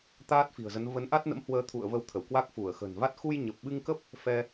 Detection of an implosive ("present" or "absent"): present